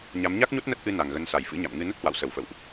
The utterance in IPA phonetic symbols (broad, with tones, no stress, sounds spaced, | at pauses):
ɲ a˨˦ m ɲ a˦˥ k̚ ɲ o˦˥ t̚ n ə˦˥ t̚ ʔ ɨ˧ n a˨˩ ŋ ɣ ə˨˦ n s a˧˩ j f ɨ̰˧˥ ɲ a̰˧˨ m ŋ ɨ˧ n ə˦˥ t̚ h w a̰˧˨ w s ə˧˩ w f ə̰˧˨ w ʔ